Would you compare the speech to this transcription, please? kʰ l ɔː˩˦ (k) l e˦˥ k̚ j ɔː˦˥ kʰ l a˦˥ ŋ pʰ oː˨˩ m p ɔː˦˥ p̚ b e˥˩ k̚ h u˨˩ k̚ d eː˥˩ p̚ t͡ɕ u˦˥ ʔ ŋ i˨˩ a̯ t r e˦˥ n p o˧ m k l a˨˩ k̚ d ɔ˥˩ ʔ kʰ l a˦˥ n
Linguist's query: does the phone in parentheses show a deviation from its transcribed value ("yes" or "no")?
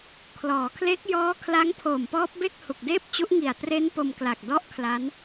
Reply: yes